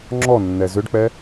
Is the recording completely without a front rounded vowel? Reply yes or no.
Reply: no